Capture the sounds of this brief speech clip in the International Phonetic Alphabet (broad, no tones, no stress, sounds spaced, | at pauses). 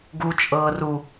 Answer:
ɡ u t͡ʃʼ ɤː r u